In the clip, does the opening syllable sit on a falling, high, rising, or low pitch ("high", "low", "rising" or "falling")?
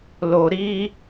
low